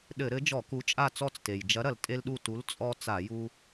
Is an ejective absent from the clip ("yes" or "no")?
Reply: no